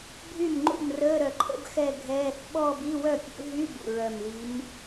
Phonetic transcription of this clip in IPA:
bʱ y˥˩ m ŋ͡ǃ ṵ˥˩ m r əː˧˥˧ ɾ œ˨˩ ǃʰ ə̰˧˥˧ b x ɛ˥˧ ɡʱ ɛː˧˥˧ θ ɓ ɔː˥˧ b i˧˥˧ w œ˥˩ pʲ ṵ˨˦ ɦ y˧˥˧ b ṵ˨˩ ɹ œ˨˩ m l i˨˦ m

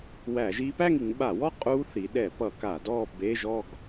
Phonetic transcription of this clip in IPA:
w æ˧˩˧ ʒ i˦˥ p æ˥˧ ŋ i˩˧ ŋ ɓ a˧˩˧ w ɔ˥˧ qʼ u˦˥ θ i˩˧ ɗ ɛ˧˩˧ p ʌ˧˩˧ k a˧˩˧ d ɔ˥˧ b e˧˥˧ ʒ ɔ˥˧ ɡ

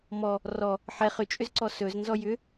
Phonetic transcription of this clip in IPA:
m ɔ | r ɔ | ħ ɛ χ ʏ t͡ʃʼ ʏ z ǀ ɔ s ɵ z n z ɔ j ʏ

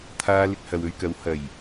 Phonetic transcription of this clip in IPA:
t̪ʰ aː˧ l ɪ˧ k̚ h ɐ˨ w ɵ˧ ɥ k ɐ˨˥ w h ɐ˨˩ j

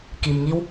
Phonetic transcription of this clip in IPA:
k i˩ m ŋ i˧ w

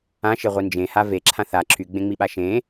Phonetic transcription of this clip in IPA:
ã ʃ e ʁʷ i n d͡ʒ ẽ h a v e ǁʰ ã θ a ǁʰ y ɡ͡b ẽ ŋ͡m i ɓ a ʃ ẽ

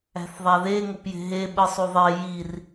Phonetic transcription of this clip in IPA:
æ̤ θ ðˤ æ ð e ŋ o p j e̤ ɦ e ɓ ɯ sˤ u ðˤ e j i r

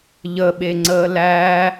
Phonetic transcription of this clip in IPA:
ʎ ə ɓ e ŋ͡ǀ əː l æ

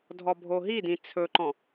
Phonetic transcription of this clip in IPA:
dʱ ɔ bʱ o ɦ i d ĩ t͡sʰ ɵ ǃ ɔ̃

